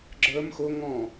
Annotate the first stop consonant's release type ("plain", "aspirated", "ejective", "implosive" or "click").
click